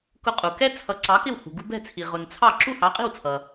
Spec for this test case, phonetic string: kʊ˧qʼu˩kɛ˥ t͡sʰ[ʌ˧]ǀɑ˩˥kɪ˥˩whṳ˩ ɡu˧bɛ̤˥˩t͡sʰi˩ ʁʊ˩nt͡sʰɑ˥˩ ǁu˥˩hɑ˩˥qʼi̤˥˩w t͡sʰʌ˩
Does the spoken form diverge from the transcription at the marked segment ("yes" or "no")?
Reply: yes